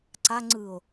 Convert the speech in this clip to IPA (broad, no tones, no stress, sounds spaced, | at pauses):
ǀ a ŋ͡ǀ ɯ o̯